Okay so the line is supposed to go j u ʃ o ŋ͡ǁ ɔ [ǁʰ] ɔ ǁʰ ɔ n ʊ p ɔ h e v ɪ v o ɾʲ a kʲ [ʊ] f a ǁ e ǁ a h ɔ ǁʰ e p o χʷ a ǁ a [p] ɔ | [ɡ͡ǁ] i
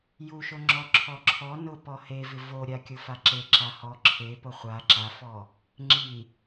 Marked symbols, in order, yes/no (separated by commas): yes, yes, no, no